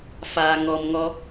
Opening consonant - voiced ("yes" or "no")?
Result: no